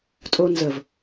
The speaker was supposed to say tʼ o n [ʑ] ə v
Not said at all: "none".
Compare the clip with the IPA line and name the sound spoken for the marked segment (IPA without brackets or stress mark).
z